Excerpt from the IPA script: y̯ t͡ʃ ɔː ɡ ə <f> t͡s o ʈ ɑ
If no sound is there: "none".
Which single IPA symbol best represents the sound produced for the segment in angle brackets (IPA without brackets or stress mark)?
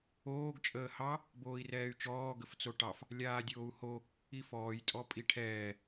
f